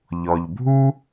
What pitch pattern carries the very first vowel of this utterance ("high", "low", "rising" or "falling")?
low